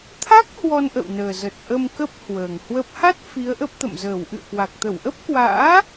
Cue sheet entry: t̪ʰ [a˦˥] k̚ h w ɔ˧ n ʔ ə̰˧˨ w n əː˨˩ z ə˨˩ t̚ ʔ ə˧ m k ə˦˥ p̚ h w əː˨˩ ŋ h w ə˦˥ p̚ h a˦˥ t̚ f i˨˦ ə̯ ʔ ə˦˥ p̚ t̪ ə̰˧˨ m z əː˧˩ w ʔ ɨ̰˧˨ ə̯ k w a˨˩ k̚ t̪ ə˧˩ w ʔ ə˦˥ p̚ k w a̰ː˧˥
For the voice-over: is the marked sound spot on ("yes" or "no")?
yes